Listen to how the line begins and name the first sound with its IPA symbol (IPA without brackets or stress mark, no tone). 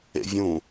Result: ḛ